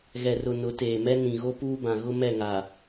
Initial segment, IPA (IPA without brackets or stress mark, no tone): ɣ